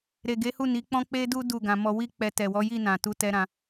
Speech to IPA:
ɾ e˨ ɡ e˨˦ h u˦˨ n i˨˦ k͡p ɔ̃˦ k͡p e˦ d u˦ d u˦˨ ɡ ã˧ m ɔ˧ w i˦ k͡p ɛ˧ t ɛ˨ w ɔ˨˦ j i˦˨ n ã˨ t u˨˦ t ɛ˧ ɾ ã˧

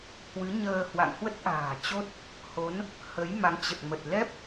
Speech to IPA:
h w ɨ˨˦ ɲ əː˧ h w a̰˧˨ ŋ h w ə˦˥ t̚ ʔ a̤ː˨˩ t͡ɕ o˦˥ t̚ | h o˨˦ n | h ə˨˦ j m a˨˦ ŋ t͡ɕ ə˨˩ t̚ m ə˨˩ t̚ l ɛ˦˥ p̚

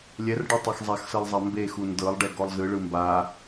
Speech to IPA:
lʲ ɛ r ɖ ɔ tˤ e x zˤ a x s ɤ lˠ zˤ a m b e x u n d ɤ lˠ ɖ ɛ ɡ ɔ lˠ z ɯ ɭ ɯ m b a

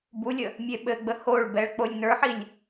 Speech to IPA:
b u lʲ ə | mʲ e ɓ ɘ ɡ͡b ə h o ɭ b ɛ ɭ k͡p o lʲ n ə˞ ħ i lʲ

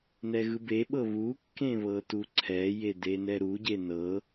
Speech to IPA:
n ɛ ɣ ɯ b e ɓ ɤ β u kː ẽ β ɤ t u ǀʰ ɛ j e d e n ɛ ɾ u ɟ e n ɤ

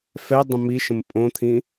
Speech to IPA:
f ɛ dˤ ə̃ m i ʃ ə̃ m pʼ õ t̪ʰ ĩ

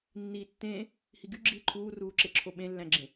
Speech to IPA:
nː iː tː ẽː | h i ɡ y ɡ͡ǁ iː ǃʰ uː r uː ǁ e ǁʰ o ɓ ẽ lː æ̃ ɡ͡ǁ ẽ

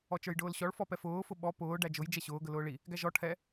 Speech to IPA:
ɔ t͡ʃ ə˞ j ɖ ʊː l ɕ ɔ ɭ f ɔ p ɛ f ʊː f ʊ ɓ ɔ p ʊː ɖ æ d͡ʒ ʊ j d͡ʒ ɛ ɕ ʊː ɡ ə l ʊː ɭ i | ɡ æ ʒ ɔ ʈʰ ɛ

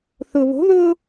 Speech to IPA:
θ ʊ β o̤ ð ʊː

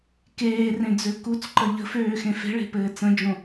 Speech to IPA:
k eː r ẽ d͡z ø k u t͡s ǃ ə ʎ ə̤ f øː x ẽ f e̤ ɭ e̤ p ɘː t͡s ə̃ d͡ʒ õ

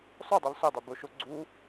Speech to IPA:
sˤ ʊ dˤ ʊ lˠ s ʊ dˤ œ b ʊ ʃ ʊ ɡ͡ǀ u

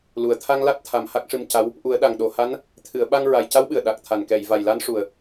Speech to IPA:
l u˨˩ ə̯ t̪ʰ a˧ ŋ l a˦˥ t̚ t̪ʰ a˨˩ m h a˦˥ k̚ ʂ ɨ˧ m c a˧˥ w | ʔ u˨˩˦ ə̯ ɗ a˨˩ ŋ ɗ o˨˩ h a˧˥ n | t̪ʰ ɨ˨˩˨ ə̯ ɓ a˧ ŋ ɹ a˨˩ j c a˧˥ w ɓ ɨ˨˩ ə̯ ɗ a˨˩ k̚ t̪ʰ a˨˩ n k ɛ˨˩˨ j v a˨˩ j l a˧˥ n ʂ u˨˩ ə̯

